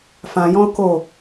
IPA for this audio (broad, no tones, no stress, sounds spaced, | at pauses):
f ã j ɔ̃ ʊ̯ k o